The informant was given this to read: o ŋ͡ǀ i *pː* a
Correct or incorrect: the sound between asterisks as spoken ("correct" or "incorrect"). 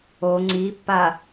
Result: correct